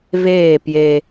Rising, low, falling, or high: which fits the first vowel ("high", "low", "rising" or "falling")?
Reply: falling